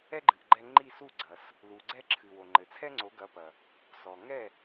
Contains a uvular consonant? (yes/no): no